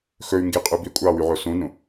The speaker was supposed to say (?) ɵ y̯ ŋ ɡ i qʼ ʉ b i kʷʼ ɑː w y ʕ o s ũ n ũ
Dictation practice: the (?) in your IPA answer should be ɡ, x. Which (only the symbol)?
x